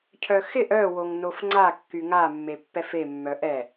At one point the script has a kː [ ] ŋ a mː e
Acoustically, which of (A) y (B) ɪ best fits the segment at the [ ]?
A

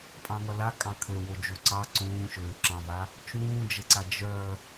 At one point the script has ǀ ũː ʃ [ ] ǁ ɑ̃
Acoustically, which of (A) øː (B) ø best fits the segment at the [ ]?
A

